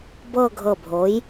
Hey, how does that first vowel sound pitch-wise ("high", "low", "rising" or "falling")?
falling